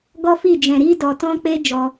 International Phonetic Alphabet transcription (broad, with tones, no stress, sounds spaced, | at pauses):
ɡ ɔ˦ f i˦˨ d͡ʒ ɛ̃˨ ɾ i˧ d ɔ˨ t ɔ̃˧ k͡p e˦ d͡ʒ ɔ˧